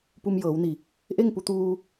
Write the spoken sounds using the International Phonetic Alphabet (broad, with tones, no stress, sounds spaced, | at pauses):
p u˧ m j ɤː˩˧ w n i˧˩ | ʔ e˥˨ ŋ p u˧ t̪ uː˧